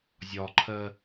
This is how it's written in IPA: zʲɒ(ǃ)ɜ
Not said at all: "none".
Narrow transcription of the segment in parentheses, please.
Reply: ǃʰ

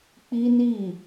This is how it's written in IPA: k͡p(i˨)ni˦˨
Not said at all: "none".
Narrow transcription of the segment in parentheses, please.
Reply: i˦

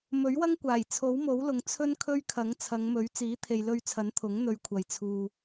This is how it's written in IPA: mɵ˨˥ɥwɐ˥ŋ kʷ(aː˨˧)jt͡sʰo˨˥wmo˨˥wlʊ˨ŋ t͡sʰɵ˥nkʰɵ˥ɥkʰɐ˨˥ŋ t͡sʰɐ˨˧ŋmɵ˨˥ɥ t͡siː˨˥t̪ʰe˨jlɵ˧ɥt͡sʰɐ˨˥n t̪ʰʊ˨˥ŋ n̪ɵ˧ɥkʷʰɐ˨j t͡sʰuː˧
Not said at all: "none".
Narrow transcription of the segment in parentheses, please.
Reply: aː˨˩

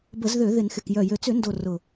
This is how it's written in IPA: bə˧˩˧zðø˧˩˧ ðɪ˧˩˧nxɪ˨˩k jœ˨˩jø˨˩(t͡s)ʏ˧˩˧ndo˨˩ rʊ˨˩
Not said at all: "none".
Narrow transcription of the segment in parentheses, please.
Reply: t͡s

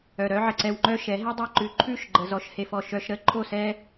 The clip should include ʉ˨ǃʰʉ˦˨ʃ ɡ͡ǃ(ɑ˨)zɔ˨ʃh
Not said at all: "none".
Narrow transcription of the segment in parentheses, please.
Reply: ə˨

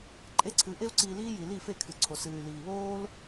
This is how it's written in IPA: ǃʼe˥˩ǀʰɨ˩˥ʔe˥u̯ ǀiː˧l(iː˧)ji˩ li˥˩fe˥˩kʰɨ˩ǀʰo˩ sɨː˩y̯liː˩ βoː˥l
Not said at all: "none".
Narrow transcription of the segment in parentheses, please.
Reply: iː˥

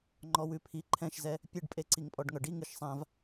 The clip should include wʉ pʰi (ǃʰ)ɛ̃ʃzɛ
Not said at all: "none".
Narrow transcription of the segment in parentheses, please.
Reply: ǃʰ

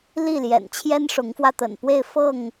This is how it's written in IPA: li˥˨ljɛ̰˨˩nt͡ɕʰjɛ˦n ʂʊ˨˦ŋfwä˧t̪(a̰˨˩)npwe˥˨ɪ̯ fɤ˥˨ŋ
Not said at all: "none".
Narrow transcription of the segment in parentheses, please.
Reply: ə̰˨˩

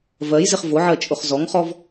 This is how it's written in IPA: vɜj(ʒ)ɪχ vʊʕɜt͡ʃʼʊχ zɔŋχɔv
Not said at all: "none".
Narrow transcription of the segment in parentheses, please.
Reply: z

